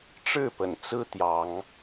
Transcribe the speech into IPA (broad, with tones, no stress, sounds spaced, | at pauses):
ʈ͡ʂ ɻ̩˥˨ p ə̰˨˩ n t͡s ɹ̩˦ t̪ j ɑ˨˦ ŋ